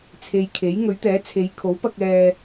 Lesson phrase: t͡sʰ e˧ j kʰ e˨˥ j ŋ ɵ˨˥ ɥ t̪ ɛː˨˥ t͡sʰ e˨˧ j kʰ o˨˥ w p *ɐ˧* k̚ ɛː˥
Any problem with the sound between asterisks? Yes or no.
no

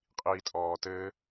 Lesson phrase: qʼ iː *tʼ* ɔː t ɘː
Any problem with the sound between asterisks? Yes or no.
no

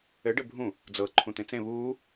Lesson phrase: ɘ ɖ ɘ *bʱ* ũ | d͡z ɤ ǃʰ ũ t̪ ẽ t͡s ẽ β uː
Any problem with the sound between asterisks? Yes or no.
no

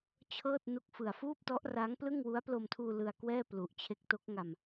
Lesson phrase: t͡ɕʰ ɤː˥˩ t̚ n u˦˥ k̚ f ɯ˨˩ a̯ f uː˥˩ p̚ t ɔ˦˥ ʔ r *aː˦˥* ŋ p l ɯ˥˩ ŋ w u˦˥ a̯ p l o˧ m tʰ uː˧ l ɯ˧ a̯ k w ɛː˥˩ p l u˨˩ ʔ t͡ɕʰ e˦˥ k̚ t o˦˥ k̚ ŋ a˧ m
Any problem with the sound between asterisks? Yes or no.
no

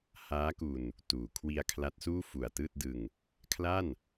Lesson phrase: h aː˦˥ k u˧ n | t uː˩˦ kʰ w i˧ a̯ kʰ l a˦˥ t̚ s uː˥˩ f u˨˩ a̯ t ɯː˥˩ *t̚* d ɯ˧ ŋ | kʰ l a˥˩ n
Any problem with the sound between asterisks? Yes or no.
no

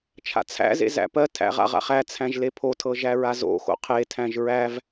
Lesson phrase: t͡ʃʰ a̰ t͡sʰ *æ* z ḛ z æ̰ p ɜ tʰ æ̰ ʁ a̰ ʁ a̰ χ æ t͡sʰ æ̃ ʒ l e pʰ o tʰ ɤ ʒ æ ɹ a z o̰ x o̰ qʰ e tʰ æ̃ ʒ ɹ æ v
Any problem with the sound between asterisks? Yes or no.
yes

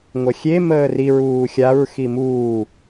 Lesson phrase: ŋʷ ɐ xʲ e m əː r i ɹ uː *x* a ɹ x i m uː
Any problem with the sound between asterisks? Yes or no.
yes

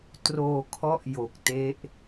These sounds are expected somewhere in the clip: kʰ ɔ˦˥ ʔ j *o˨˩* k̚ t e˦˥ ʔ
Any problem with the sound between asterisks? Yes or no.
no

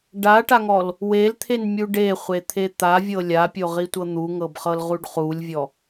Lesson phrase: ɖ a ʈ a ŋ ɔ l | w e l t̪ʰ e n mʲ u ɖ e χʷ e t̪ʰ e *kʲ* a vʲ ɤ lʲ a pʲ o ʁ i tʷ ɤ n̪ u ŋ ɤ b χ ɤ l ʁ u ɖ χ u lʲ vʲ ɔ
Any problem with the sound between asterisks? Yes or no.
yes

